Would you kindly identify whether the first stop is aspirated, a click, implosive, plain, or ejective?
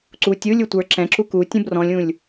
click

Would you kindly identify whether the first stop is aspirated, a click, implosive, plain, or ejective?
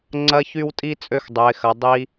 click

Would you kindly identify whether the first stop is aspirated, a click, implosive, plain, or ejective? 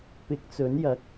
plain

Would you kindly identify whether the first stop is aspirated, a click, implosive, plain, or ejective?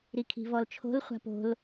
aspirated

